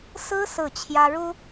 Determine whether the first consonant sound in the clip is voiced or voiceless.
voiceless